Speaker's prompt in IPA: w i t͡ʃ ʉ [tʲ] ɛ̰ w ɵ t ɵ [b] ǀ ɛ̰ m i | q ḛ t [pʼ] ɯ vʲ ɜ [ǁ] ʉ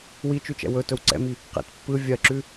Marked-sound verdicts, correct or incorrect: incorrect: t͡ʃ, incorrect: w, incorrect: pː, correct

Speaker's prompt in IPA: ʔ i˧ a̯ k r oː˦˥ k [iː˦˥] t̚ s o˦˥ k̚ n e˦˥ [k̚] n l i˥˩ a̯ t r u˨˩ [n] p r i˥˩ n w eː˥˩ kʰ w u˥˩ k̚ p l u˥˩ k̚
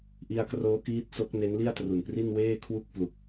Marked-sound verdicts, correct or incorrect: correct, incorrect: none, correct

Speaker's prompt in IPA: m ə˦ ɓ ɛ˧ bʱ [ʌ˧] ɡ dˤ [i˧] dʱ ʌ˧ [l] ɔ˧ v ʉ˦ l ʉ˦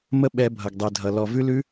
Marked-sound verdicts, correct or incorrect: correct, correct, correct

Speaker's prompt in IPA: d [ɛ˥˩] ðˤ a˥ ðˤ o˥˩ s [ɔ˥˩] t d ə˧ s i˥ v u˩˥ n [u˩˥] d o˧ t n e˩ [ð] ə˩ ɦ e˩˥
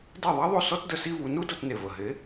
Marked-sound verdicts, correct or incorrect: correct, incorrect: ɔ˥, incorrect: u˥, incorrect: v

